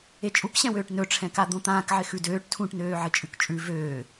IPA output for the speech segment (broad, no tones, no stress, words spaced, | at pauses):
et͡ʃʼukɕɛ̃wøːʈ nɵʈ͡ʂʰɛ̃ka d̪õt̪ãːk ʕɪxʉdøːʈ tʰũʈnøː ʕɪt͡ʃʼʉkt͡ʃʼʉ vøː